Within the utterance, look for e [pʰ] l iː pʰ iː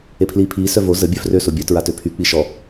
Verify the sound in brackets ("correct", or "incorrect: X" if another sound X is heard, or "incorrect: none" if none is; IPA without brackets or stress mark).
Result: correct